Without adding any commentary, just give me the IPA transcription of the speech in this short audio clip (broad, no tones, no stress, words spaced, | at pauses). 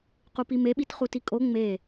qupimeɓit χutikʼo ŋ͡me